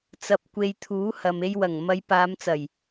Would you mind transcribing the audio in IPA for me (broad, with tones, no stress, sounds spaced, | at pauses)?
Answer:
t͡s ɐ˧ p̚ kʷ e˧ j t̪ʰ uː˨˥ h ɐ˨ m e˧ j w ɐ˨˩ ŋ m ɐ˨˧ j p aː˨˧ m t͡s ɐ˨˩ j